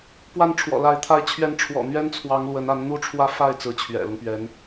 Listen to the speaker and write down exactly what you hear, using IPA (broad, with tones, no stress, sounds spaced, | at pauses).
p w a˥˩ n ʈ͡ʂʰ w ɔ̰˨˩ l a˧˥ ɪ̯ t̪ʰ a˧˥ ɪ̯ t͡ɕʰ ɥ ɛ˧˥ n ʈ͡ʂʰ w ɔ̰˨˩ n̪ ɥ ɛ˥ n t͡sʰ w ɑ˧˥ ŋ l w ə˧˥ n a˧˥ n n̪ u˥ ʈ͡ʂʰ w ä˥˧ f a˥˩ ɪ̯ t͡s ɹ̩˧˥ t͡ɕʰ ɥ ɛ̰˨˩ l ʊ˦ ŋ p ɥ ɛ˧˥ n